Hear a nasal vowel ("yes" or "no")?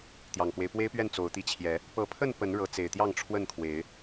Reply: no